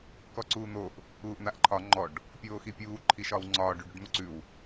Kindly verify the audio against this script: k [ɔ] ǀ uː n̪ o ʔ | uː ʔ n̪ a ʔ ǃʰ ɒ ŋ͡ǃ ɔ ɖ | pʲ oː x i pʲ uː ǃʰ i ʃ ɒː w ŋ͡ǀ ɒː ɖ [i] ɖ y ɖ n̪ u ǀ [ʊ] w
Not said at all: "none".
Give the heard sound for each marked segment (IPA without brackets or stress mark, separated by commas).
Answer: ɔ, y, ʉ